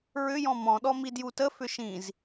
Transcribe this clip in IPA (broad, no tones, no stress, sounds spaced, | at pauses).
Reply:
ɹ ʏ j ɔ̃ m ɔ̃ ɗ ɔ m i d j u t ə f ʏ ʃ ĩ z